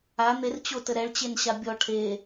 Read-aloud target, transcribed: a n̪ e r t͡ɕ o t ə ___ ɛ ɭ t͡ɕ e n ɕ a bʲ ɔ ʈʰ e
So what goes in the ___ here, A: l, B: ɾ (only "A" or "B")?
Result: B